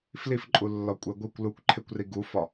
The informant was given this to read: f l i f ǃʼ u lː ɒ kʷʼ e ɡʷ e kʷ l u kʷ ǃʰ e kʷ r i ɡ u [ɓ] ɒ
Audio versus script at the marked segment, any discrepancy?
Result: yes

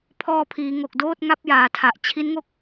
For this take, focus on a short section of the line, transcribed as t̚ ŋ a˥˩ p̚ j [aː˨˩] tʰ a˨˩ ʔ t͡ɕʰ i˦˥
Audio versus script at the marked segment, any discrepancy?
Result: no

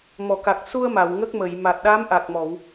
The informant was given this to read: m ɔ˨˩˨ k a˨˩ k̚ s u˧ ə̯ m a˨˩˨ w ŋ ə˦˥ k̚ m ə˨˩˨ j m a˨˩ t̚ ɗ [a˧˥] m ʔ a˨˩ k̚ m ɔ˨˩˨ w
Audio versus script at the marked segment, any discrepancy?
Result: no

